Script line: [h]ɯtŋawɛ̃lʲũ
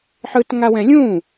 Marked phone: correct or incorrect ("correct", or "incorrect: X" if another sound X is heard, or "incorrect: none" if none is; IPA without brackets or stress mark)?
incorrect: ħ